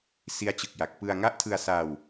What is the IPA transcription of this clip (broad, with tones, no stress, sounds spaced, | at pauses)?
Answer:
s i˦˥ a̯ t͡ɕ ɯ˨˩ k̚ j a˨˩ k̚ p ɯ˧ a̯ ŋ a˦˥ ʔ tʰ ɯ˧ a̯ s aː˧ w